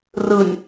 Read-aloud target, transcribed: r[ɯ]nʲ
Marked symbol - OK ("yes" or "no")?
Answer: yes